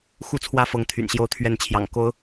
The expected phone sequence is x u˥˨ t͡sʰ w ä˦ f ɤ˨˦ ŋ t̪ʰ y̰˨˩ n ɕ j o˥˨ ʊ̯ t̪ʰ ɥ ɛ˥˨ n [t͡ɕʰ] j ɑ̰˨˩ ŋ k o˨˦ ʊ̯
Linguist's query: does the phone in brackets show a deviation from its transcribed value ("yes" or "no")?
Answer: no